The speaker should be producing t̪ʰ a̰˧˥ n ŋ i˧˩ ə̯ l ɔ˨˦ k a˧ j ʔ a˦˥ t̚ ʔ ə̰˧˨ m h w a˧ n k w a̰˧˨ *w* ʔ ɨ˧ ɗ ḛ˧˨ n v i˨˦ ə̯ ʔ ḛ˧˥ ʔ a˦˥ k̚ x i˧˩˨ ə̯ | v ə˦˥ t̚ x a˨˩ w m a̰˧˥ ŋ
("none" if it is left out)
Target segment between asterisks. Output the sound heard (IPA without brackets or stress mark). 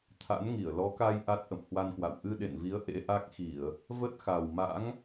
w